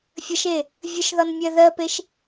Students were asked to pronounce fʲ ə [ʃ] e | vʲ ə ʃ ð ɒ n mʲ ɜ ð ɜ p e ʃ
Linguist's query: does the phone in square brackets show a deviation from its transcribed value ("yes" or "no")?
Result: no